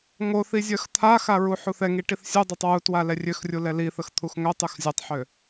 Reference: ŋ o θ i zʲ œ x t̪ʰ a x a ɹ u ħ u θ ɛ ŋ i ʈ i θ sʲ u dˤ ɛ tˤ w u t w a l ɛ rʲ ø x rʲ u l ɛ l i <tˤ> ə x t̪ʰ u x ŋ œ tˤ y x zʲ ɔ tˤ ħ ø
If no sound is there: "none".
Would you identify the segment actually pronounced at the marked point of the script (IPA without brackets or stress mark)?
θ